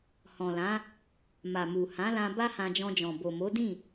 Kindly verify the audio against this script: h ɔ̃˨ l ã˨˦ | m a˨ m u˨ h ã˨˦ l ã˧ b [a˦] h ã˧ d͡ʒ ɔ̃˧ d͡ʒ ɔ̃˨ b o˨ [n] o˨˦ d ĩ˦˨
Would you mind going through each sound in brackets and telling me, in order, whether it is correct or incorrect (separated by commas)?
correct, incorrect